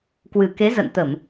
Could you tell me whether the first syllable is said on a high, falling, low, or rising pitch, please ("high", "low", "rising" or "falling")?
low